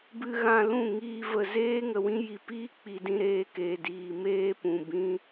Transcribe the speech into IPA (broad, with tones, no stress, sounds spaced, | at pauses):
b ɨ˧ ɣ ã˧ l ũ˦˨ ŋ iː˧ v ə˨ z eː˦ ŋ ə˨ w ĩ˦ j i˨ p iː˦ k͡p i˨ d ĩ˧ ɾ eː˧ k eː˨ d iː˨ m eː˦ p ũ˨ b ĩ˦